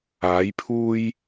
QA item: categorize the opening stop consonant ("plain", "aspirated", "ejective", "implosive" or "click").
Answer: aspirated